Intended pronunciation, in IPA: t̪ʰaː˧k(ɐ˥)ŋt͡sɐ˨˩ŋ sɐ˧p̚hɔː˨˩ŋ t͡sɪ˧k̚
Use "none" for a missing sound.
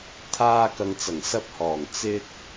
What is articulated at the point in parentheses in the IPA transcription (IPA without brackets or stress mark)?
ɐ˨